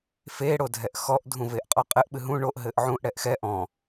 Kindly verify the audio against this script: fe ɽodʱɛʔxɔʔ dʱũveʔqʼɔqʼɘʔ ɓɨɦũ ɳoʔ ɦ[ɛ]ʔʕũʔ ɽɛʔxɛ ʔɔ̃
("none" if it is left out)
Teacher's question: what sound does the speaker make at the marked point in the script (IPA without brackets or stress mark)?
ɘ